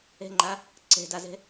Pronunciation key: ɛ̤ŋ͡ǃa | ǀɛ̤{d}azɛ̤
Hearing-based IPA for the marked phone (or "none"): d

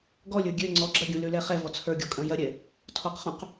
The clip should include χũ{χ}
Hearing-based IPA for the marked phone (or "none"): q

